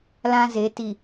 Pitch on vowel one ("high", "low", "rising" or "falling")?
high